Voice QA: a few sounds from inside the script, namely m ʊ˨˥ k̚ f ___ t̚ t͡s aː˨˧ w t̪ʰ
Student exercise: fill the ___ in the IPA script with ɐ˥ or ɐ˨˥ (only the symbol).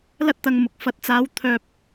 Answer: ɐ˨˥